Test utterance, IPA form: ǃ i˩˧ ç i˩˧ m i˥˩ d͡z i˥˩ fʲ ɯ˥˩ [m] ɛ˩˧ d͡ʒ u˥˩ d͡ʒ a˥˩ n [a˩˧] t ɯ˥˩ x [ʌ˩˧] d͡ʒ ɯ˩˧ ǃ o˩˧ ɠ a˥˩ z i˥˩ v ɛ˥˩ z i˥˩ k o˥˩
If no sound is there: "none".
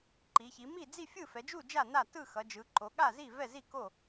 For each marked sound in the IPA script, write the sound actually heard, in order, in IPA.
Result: f, a˥˩, ʌ˩˧

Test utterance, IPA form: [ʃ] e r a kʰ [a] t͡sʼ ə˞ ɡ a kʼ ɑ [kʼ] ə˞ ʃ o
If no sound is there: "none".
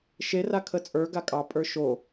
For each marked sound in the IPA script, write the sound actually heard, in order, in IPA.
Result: ʃ, ə, pʼ

